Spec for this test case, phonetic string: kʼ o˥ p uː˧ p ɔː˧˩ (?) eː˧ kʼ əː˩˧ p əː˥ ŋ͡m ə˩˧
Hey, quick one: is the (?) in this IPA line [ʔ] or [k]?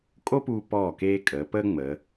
k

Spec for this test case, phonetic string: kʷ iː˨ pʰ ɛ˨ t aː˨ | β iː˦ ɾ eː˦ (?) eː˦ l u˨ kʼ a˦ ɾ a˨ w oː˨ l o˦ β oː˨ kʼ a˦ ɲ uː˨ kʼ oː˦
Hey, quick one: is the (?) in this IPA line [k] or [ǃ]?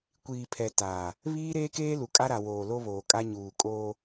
k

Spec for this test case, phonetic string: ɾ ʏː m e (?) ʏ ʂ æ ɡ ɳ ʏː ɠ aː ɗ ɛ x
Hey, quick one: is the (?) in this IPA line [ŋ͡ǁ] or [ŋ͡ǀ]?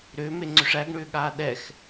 ŋ͡ǀ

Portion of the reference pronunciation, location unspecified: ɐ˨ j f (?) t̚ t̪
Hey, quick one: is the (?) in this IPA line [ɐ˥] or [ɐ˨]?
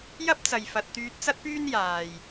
ɐ˨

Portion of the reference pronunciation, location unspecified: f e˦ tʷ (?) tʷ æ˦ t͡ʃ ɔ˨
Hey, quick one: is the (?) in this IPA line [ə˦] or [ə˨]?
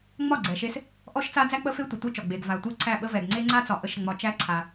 ə˨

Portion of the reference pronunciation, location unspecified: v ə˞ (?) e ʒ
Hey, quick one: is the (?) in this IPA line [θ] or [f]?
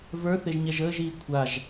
θ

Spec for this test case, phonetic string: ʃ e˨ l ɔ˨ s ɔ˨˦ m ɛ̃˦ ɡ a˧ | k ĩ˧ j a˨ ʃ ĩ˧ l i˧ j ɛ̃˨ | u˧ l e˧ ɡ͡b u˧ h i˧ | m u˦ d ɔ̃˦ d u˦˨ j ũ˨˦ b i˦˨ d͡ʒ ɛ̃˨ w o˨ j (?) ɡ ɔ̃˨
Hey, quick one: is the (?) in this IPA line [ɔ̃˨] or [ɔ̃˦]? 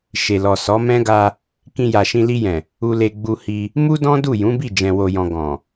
ɔ̃˨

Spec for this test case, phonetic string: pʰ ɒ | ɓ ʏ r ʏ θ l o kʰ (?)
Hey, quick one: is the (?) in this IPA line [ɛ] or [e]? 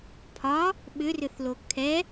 ɛ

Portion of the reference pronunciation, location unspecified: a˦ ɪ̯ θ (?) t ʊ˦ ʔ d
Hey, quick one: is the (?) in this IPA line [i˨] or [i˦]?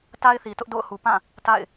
i˨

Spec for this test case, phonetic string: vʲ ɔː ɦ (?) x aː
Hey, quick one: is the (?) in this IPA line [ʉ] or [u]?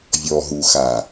u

